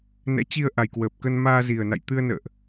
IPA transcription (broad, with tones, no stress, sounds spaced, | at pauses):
n ɛ̰˧˥ t͡ɕ i˧ ə̯ ʔ a˨˩ j k w əː˨˩ p̚ k ə˧ n m aː˧ z i˨˩ ə̯ n a̰˧˨ j t̪ ɨ˧ ə̯ n ə̰ː˧˨ ʔ